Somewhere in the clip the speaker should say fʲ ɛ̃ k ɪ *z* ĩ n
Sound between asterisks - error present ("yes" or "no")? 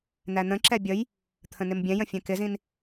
no